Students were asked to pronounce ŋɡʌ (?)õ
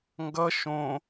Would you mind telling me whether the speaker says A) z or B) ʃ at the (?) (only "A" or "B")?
B